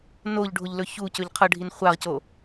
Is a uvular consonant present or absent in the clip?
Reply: present